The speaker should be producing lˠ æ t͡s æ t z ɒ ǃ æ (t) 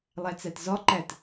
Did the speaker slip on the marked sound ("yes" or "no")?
no